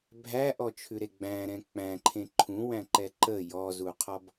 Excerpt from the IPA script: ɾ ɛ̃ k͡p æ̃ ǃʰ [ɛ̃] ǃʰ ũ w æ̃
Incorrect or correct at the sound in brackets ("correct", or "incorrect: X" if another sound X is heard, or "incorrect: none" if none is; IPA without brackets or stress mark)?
incorrect: ẽ